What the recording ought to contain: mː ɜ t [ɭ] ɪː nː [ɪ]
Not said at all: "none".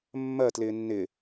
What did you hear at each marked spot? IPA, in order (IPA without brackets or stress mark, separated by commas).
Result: l, ɪ